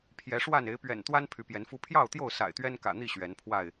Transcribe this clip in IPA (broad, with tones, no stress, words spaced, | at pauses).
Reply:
pʰjɛ˨˦ʂwa˥˨n e˨˦ɪ̯pɥɛ̰˨˩n t̪wa˦n pʰy˨˦pjɛ˨˦nfu˦ pʰjɑ˥˨ʊ̯t̪jo˥˨ʊ̯ sa̰˨˩ɪ̯t̪ɥɛ˦nkä̰˨˩ n̪i˥˨ ɕɥɛ˨˦npʰwa˥˨ɪ̯